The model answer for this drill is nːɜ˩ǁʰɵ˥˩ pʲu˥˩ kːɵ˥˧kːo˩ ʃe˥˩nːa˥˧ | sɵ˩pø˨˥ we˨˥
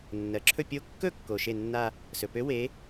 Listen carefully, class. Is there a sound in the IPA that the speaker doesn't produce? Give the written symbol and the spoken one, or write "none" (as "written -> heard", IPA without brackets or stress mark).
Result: u˥˩ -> o˥˩